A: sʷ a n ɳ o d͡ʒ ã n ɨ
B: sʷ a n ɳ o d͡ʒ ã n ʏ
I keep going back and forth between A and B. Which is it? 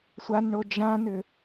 B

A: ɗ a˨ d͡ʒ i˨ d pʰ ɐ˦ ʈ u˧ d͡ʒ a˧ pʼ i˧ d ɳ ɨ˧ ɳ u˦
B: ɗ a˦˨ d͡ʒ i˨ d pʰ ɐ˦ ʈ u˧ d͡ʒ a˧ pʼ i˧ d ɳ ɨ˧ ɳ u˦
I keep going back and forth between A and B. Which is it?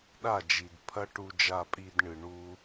B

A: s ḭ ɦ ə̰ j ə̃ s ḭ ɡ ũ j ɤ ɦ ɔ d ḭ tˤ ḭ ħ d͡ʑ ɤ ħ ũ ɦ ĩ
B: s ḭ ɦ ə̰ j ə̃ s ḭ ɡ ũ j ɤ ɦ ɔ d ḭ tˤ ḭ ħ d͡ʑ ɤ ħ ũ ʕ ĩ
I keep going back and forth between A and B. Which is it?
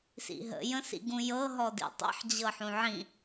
B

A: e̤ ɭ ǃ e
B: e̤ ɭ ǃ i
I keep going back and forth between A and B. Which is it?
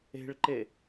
A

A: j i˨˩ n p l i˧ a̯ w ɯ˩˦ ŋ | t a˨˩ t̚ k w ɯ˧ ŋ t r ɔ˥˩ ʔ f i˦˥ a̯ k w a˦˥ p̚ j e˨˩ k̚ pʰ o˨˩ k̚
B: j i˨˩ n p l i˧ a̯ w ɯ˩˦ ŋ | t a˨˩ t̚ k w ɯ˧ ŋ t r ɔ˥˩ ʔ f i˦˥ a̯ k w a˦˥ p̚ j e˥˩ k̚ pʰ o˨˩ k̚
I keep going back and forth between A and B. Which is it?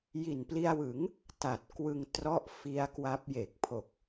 A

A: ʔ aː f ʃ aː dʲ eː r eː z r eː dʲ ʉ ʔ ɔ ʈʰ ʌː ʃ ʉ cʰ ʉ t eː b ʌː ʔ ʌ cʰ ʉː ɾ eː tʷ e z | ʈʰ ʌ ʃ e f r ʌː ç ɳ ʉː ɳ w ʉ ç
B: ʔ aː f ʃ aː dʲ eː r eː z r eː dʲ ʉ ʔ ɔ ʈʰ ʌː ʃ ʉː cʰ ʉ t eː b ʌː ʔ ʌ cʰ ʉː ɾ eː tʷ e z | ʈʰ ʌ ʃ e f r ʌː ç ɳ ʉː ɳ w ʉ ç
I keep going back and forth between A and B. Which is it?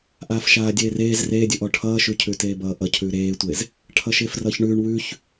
A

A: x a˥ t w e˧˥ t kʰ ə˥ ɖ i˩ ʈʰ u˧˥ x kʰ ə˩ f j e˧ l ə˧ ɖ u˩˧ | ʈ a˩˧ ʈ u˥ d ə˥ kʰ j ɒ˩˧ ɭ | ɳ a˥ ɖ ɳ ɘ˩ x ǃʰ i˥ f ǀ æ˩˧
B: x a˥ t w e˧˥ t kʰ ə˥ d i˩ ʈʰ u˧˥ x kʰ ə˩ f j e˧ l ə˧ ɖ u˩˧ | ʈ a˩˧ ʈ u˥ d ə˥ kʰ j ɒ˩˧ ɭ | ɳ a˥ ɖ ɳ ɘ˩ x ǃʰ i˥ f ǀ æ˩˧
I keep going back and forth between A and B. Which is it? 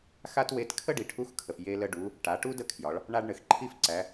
A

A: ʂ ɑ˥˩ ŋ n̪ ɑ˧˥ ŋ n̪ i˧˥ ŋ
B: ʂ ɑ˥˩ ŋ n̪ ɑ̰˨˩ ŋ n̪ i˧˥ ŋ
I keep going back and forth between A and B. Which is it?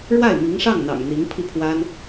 B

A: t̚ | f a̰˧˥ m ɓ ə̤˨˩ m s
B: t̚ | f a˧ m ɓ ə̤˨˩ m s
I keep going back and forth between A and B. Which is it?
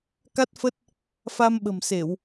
B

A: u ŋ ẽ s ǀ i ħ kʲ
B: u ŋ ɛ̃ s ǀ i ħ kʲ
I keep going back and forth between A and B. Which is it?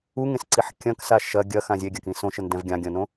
A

